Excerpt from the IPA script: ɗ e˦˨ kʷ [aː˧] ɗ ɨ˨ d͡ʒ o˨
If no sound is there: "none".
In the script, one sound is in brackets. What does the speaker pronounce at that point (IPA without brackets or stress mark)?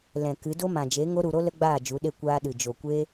aː˧